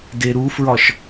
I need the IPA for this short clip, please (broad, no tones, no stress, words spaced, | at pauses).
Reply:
deɾufɹɒʃ